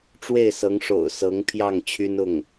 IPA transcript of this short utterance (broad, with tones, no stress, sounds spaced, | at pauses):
ʈ͡ʂ w e˥˩ ɪ̯ s ɤ˧˥ ŋ ʂ o̰˨˩ ʊ̯ s ɤ˧˥ ŋ pʰ j ɑ˥˩ ŋ t͡ɕʰ y˥ n ʊ˥˩ ŋ